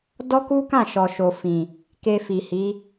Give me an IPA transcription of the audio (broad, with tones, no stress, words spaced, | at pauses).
dɔ˦ku˦kã˦˨ ʃɔ˨ʃo˨fĩ˨ | ke˧fi˨hi˨˦